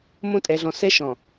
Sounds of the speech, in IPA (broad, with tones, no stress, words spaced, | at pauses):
mõ˦˨tʼɛ˨ɮɔ̃˨ sɛ˦ʃɔ̃˨